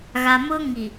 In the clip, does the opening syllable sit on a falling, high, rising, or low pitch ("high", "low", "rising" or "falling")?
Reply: low